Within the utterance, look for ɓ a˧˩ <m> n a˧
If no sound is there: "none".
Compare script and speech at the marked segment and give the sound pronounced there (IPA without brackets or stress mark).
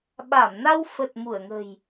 m